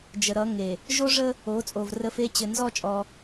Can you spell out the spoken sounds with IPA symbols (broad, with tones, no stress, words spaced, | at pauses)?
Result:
d͡ʒə˨ɾʌ˨˦ ŋe˨ | ʒo˦ʐə˦ | o˨˦ t͡sʼo˨vrə˦˨fe˦ t͡ɕɘ˨nzɔ˦˨ t͡ʃʼɔ˦